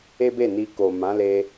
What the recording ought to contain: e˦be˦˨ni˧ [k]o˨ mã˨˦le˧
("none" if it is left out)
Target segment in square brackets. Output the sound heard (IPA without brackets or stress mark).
k